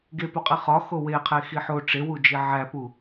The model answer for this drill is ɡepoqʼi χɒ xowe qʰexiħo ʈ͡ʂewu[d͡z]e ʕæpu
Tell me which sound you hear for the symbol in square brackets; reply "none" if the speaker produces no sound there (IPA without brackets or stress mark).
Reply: d͡ʒ